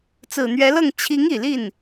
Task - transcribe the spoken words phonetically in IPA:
t͡s ɹ̩˨˩ n̪ ɥ ɛ˧˥ l ɤ˥˩ ŋ t͡ɕʰ i˧˥ ŋ i˨˩ l i˥˩ n

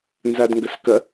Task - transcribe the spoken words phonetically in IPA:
n z a d ŋ ɡ ɐ s k ɐ

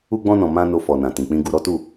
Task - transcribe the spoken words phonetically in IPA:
u˧ ɡ͡b ɔ̃˧ n ɔ̃˨ m ã˧ n o˧ f ɔ˨ n ã˨ t ĩ˨ k͡p ĩ˧ ɡ u˧ ɾ ɔ˦ t u˦˨

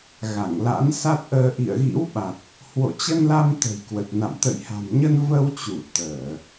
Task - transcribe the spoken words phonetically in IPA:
ɣ a˧˩ ŋ l a̰˧˥ n s a˦˥ t̚ ʔ əː˧ ʔ ḭ˧˨ ə̯ ɣ ḭ˧˥ w ɓ a˨˩ t̚ | h w o̰˧˨ t͡ɕ ə˧ n l a˧ m t̪ ə̤˨˩ j k w ə˨˩ t̚ n a̰˧˨ m t̪ ə̰˧˨ j h a̤˨˩ m ɲ ə˧ n v ə˧ w t͡ɕ u˧˩ t̪ əː˧˩˨

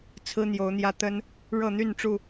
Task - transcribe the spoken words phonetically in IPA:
t͡sʰ ɹ̩˦ n̪ j o˨˦ ʊ̯ n̪ j ä˦ t̪ ə˦ n | ɻ ɤ˥˨ n̪ y˥˨ n ʈ͡ʂ u˥˨

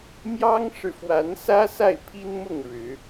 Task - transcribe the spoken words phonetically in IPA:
m j ɑ˦ ŋ ʂ ɻ̩˨ f w a˨˦ n s ä˦ s a˥˨ ɪ̯ pʰ i˦ n m ʊ˥˨ ŋ ɻ ɻ̩˨˦

